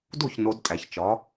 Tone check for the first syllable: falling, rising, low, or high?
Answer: falling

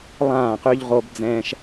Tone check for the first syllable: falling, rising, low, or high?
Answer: falling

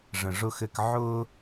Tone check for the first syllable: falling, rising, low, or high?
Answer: low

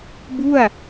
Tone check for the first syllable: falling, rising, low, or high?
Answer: falling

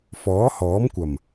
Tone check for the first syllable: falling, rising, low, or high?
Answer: rising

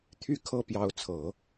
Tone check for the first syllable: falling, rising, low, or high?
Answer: falling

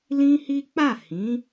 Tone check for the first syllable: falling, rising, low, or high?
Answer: high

